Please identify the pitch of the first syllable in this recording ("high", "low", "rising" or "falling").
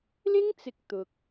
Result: high